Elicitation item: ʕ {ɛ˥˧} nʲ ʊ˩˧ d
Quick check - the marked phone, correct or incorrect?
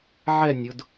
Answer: correct